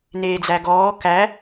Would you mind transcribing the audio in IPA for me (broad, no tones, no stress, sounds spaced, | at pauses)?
n eː d͡z æ ɡ ɔː k æ